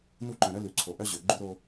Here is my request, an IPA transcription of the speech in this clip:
n u˦ ǃ œ̃˨ ɾ œ˦ l ʉ˨ ǀʰ o˨ ʔ œ˦ ʑ ø˨ ɡ͡ǃ ʉ˦ ɾ o˦

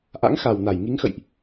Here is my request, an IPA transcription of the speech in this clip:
ʔ a̰˧˥ ŋ x a˨˩ w n a˧˩ j ŋ i˨˦ ŋ x ə̰˧˨ j ʔ

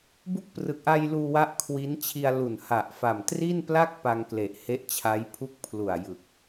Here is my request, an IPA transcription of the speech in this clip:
b u˦˥ k̚ p r ɯ˨˩ k̚ ʔ a˧ j l uː˧ w a˦˥ ʔ kʰ w i˦˥ n t͡ɕʰ i˧ a̯ l u˨˩ n h a˨˩ ʔ f a˨˩ m t r i˥˩ n p l a˥˩ k̚ p a˧ ŋ k l e˨˩ ʔ h e˦˥ ʔ t͡ɕʰ a˦˥ j pʰ u˥˩ k̚ pʰ l u˨˩ a̯ j ɯ˨˩ k̚

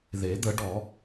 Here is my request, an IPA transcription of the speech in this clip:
ð e˨˩˦ d̪ ə˨˩˦ ɖ ɔ˨˩˦

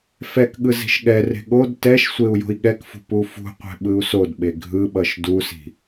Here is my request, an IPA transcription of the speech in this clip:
f ɛ k ɠ ɯ z i̤ ʃ ɠ ɛ r e̤ ɠ o d t ɛ ʃ sʷ e u̯ j o̤ i̯ ɠ ɛ k f ṳ p u f ṳ qʷ ɛ̤ ɓ ɯ u̯ s o d ɓ e ɡʱ ɯ ɓ ʌ ʃ d u s i̤

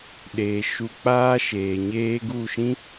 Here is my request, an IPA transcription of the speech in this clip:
ɗ eː˨ ʃ u˧ k͡p aː˦ ʃ eː˨ ɲ eː˦ ɡ u˦˨ ʃ ĩ˦

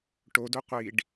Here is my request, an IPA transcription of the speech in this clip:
ʈ o d o qʷ i ɖ

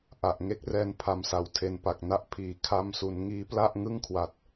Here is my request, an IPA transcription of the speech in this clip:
ʔ a˨˩ ʔ ŋ e˦˥ k̚ r ɛː˧ n pʰ a˨˩ m s a˨˩ w tʰ e˧ n p a˨˩ k̚ n a˥˩ ʔ pʰ iː˨˩ kʰ a˧ m s u˩˦ n ŋ iː˦˥ p l a˥˩ ʔ ŋ ɯ˥˩ ŋ kʰ w a˨˩ t̚

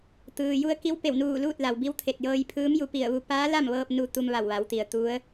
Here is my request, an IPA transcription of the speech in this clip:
t̪ ɯː˩ j u˧ ə̯ k i˧˥ w p e˧˩ w n uː˧˩ l uː˥˨ t̚ l a˩ w b i˧˥ w t̪ʰ e˧˩ t̚ j ɤː˧ j pʰ ɯː˧˥ m j u˧ p i˧˩ ə̯ ʋ u˧ p aː˧˥ l a˥˨ m ʋ ɤː˧ p̚ n u˧ t̪ u˧ m ʋ a˧˩ w ʋ a˩˧ w t̪ i˩ ə̯ t̪ u˧˥ ə̯

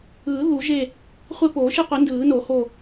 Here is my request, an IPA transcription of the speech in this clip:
ɯː˨˩˦ ð u˨˩˦ ʒ e˦˨ | χʷ e˦˨ p oː˨˩˦ ʃ i˦˨ qʷ i˨˩˦ n d ɯː˨˩˦ n o˨˩˦ h o˦˨

